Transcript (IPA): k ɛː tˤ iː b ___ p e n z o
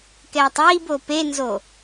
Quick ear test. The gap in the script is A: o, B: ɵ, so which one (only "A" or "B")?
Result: A